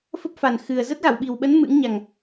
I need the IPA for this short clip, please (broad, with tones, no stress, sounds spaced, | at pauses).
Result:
f ə˦˥ p̚ f a˨˩ n x ɨ˨˩ ə̯ z ə˦˥ t̚ ɣ a˧˩ w ɓ i˨˩ w ɓ ə˨˦ n m ɨ̰˧˥ ŋ ɲ a˨˩ ŋ